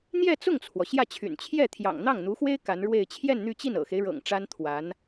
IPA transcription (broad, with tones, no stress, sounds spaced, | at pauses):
n̪ j ɛ˥˧ t͡s ʊ˥˩ ŋ t͡sʰ w ɔ˩ ɕ j ä˥˩ t͡ɕʰ y̰˨˩ n t͡ɕʰ j ɛ˥˩ t̪ʰ j ɑ̰˨˩ ŋ n̪ ɑ˥˩ ŋ n̪ u˧˥ x w e˥ ɪ̯ k a˧˥ n ɻ w e˥˧ ɪ̯ t͡ɕʰ j ɛ˥˧ n n̪ y˥˧ t͡ɕ i˥˩ n ɤ̰˨˩ x e˦ ɪ̯ ɻ ɤ̰˨˩ ŋ ʈ͡ʂ a˥ n t̪ʰ w a˧˥ n